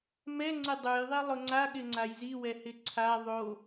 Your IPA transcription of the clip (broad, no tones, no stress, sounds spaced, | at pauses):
m ɛ ŋ͡ǀ ɪ dˤ u j ðˤ i lˠ ʊ ŋ͡ǀ a ɠ ɪ ŋ͡ǀ a j z i w ɛ h ɪ ǀʰ a ðˤ o